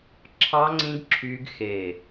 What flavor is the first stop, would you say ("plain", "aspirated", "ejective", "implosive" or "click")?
click